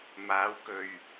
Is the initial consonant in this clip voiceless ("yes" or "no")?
no